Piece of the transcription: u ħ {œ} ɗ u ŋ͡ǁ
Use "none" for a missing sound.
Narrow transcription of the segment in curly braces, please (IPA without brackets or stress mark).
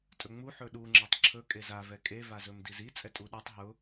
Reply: ɵ